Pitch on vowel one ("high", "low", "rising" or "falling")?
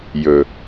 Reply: low